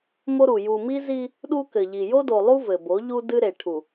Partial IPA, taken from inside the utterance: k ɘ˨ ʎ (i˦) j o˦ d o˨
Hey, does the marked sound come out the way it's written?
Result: no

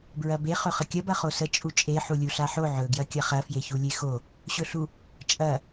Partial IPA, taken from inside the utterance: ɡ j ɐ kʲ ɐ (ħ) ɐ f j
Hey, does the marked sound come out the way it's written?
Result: no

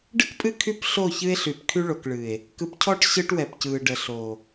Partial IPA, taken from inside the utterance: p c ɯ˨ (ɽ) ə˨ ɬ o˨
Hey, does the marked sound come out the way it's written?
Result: no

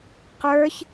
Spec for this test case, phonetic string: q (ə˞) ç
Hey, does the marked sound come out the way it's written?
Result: yes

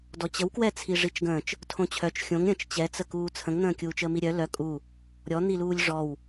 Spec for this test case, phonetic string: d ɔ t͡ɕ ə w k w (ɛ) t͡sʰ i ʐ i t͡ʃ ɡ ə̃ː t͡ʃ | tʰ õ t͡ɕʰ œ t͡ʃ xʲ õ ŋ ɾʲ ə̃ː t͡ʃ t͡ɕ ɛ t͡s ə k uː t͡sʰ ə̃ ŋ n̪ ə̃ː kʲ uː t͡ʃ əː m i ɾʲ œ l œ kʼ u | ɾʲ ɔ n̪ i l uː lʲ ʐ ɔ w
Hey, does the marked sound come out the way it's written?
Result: yes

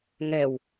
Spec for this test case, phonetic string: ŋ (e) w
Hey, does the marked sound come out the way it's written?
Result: no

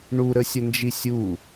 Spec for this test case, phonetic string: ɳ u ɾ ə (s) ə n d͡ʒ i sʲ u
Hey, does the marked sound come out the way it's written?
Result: no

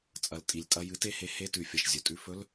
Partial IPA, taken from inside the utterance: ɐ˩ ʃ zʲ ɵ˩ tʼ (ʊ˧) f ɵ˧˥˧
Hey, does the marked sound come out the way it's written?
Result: no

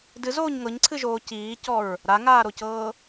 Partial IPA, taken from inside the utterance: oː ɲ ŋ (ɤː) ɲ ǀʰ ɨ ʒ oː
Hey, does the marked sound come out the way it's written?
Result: no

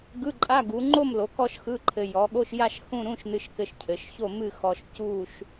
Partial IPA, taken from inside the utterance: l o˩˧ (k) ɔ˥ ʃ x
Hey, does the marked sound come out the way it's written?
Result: yes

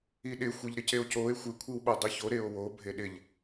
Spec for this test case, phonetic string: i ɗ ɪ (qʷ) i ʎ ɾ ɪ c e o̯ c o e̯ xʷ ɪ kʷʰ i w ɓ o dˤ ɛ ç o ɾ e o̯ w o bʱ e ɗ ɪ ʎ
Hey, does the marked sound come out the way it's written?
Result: no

